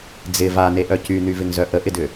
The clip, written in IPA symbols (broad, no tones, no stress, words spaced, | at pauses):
d͡zɪ vaneʔœ cynyvɪŋzœ ʔəʔɪdʏ